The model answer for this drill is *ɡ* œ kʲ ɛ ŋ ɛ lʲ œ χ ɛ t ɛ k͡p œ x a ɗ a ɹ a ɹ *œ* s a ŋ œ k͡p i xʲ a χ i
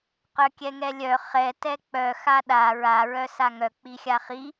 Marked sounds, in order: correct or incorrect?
incorrect: q, correct

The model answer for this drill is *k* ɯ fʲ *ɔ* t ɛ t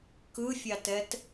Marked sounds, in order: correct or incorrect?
correct, incorrect: ɑ

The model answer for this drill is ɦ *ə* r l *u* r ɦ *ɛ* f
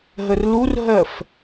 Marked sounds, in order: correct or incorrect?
correct, correct, incorrect: ɜ

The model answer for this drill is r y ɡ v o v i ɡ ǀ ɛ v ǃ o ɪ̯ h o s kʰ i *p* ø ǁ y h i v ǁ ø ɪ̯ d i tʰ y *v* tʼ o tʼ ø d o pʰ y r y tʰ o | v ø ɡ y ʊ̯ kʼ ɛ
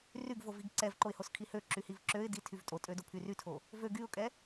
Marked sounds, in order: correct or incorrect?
incorrect: h, correct

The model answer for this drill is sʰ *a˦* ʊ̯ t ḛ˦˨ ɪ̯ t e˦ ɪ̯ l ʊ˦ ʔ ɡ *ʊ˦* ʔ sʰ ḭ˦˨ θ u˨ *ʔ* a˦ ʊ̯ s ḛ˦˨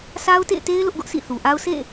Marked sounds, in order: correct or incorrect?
correct, correct, correct

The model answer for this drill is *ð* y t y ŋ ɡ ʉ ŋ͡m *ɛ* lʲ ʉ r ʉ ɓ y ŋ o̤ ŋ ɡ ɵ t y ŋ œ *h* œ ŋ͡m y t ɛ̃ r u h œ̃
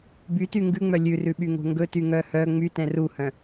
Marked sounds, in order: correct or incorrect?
incorrect: b, incorrect: œ, correct

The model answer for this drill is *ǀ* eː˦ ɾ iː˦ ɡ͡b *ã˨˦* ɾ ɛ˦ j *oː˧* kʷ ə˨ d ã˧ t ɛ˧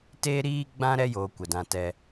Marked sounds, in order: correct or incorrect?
incorrect: t, incorrect: ã˦, correct

